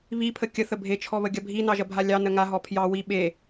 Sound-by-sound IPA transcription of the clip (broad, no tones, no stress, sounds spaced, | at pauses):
β i pʰ ə kʲ ə θ ə bʱ e t͡ʃʰ ɔ β ə ɡʲ ɐ bʱ i n ɑ ʒ ɐ bʱ a lʲ ɑ n ə ŋ a ɦ ɔ pʰ j ɑ w i ɓ e